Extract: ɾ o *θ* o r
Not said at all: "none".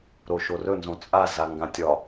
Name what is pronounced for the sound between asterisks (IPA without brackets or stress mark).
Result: ʃ